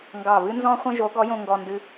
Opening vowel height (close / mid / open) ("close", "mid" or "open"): open